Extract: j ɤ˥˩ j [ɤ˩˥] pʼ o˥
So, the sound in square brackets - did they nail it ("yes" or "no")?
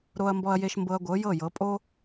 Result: yes